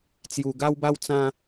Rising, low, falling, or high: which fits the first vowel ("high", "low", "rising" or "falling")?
high